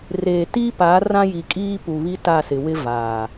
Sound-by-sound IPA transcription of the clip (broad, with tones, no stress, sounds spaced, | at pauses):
r eː˨ t iː˦ p aː˨˦ r ã˦ j i˨ kʼ iː˦ p u˨ β i˦ t a˦˨ s ɪ˨ w ɪ˦ v aː˨